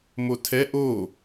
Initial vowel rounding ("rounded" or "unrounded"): rounded